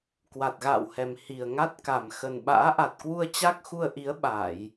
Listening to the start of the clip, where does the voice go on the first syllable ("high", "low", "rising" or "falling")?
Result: low